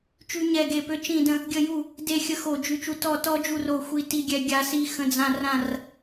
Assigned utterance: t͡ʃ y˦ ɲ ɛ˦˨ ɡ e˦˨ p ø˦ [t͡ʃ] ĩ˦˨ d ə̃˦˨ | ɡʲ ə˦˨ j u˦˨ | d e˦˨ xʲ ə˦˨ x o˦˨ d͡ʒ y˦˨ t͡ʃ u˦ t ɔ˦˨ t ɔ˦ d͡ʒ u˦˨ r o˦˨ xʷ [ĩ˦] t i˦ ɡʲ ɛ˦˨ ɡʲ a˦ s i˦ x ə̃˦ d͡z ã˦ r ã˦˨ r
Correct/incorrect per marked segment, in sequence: correct, incorrect

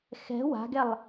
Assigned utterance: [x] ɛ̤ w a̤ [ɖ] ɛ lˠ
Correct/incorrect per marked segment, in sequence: correct, incorrect

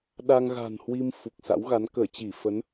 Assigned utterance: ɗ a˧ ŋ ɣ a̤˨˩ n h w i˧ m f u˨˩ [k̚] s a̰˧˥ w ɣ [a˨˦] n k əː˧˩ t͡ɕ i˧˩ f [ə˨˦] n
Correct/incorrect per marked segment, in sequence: correct, correct, correct

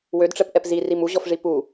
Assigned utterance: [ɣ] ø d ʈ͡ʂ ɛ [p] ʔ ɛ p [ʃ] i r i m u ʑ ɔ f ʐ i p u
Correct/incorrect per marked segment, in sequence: incorrect, correct, incorrect

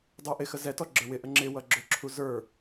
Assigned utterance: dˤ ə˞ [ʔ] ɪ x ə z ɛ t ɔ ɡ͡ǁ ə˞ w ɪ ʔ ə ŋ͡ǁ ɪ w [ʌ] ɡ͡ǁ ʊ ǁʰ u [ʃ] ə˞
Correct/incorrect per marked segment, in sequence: correct, correct, incorrect

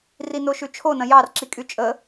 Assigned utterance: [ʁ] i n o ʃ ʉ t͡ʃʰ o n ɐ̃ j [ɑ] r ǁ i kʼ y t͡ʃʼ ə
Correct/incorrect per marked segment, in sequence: incorrect, correct

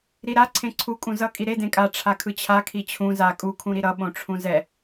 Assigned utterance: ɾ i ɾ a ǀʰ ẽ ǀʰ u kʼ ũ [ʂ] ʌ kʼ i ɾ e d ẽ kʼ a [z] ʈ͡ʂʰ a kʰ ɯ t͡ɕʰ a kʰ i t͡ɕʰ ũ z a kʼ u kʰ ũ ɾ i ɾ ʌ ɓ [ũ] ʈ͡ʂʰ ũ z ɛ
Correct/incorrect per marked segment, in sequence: incorrect, incorrect, incorrect

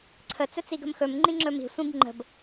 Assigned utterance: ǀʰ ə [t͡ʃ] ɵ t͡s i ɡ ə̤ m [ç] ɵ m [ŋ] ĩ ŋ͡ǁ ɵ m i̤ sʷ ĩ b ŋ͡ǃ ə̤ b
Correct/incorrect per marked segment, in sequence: incorrect, incorrect, incorrect

